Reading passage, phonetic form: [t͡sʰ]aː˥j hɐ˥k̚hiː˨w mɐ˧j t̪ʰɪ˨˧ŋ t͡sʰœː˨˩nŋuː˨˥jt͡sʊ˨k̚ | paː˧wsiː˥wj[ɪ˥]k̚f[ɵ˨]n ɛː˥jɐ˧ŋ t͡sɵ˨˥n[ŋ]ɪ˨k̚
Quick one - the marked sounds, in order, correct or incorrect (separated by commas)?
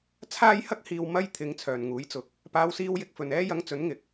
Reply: correct, correct, correct, correct